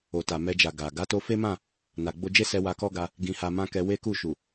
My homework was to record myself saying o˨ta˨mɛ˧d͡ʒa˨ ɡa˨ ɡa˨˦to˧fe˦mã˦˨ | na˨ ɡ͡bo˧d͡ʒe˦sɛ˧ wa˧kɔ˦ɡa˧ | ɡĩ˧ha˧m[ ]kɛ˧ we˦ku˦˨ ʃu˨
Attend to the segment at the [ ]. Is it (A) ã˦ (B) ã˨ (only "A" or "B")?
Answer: A